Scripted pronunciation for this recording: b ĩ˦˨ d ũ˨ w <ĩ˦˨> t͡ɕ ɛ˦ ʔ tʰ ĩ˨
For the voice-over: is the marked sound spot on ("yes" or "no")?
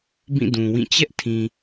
yes